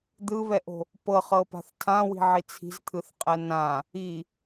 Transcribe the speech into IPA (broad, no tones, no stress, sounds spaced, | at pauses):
d̪ ɯ β ɛ ʔ o̤ | p ɤ χ ɤ p a̤ θ tʰ ã w i̤ ʕ i t͡sʰ i̤ z t̪ʰ ɯ θ qʼ ɛ n ã | i